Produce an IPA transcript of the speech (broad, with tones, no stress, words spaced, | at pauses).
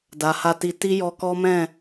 da˨ha˧ti˧ ti˦jɔ˧kɔ˦mɛ̃˦˨